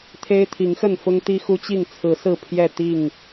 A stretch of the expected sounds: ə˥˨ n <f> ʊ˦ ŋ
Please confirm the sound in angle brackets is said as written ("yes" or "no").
yes